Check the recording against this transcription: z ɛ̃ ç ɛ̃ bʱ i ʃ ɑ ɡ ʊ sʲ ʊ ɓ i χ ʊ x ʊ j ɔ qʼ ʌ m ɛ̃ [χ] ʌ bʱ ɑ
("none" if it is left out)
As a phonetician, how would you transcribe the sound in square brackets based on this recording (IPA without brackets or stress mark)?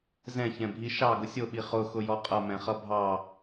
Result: χ